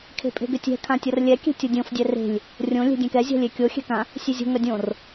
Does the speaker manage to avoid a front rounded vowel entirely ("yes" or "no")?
no